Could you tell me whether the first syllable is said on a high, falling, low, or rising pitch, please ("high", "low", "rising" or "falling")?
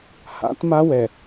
rising